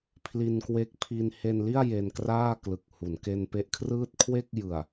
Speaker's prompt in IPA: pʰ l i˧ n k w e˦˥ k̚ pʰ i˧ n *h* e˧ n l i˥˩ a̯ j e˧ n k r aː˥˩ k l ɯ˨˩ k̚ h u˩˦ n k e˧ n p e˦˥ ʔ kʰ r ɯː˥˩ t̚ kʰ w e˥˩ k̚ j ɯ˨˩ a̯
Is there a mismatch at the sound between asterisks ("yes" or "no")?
no